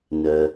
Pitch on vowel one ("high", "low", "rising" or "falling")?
low